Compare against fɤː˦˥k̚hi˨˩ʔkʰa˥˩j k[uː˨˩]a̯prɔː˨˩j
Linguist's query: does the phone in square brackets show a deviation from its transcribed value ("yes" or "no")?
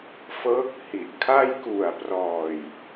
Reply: yes